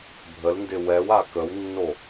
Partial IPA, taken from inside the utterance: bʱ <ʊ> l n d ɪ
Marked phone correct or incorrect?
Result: incorrect